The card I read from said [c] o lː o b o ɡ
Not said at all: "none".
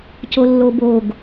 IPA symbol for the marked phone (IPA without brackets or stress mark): c